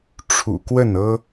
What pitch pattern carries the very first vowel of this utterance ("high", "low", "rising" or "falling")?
low